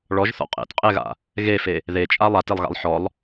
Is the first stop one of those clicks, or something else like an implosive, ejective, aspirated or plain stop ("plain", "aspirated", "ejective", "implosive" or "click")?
ejective